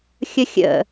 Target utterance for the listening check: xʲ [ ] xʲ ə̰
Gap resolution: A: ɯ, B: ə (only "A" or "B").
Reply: B